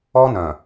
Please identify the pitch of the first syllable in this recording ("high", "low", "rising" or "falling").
high